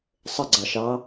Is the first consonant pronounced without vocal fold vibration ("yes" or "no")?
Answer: yes